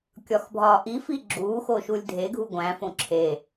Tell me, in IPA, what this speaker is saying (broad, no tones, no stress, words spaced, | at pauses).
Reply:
kʲɒxbʱɒːʔifi ɡ͡ǁuːxo ʃulʲdʱeɡʱu ɡʷæ̃fõ ǁʰe